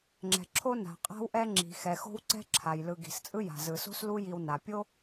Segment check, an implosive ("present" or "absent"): absent